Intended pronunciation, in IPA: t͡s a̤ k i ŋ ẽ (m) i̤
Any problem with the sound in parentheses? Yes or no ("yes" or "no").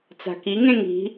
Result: yes